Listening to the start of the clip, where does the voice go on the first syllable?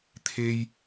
high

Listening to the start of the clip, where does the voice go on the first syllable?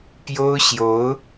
high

